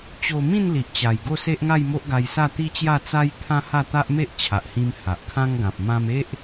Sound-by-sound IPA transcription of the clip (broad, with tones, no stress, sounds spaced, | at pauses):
t͡ɕ o˧ m ĩ˥˧ n l i˨ ʔ t͡ɕ a˨˩ j ɡ o˥˧ s e˦ ʔ ŋ a˥˧ j m o˦ ʔ ɡ a˧ j s a˥˧ t̪ i˦ t͡ɕ j a˥˧ t͡s a˦ j t̪ʰ ã˦ h a˥˧ t̪ a˦ ʔ m e˦ ʔ t͡ɕʰ a˨ ʔ h ĩ˧ m h a˨ ʔ kʰ ã˦ ŋ ɡ ã˨ p̚ m ã˧ m e˦ ʔ